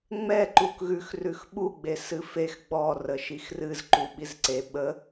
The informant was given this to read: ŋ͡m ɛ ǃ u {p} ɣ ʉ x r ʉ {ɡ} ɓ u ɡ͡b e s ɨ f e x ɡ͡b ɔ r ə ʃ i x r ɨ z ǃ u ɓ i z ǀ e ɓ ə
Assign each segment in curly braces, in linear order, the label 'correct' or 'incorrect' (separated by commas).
incorrect, incorrect